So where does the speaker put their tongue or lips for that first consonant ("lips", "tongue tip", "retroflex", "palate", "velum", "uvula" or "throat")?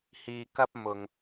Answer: throat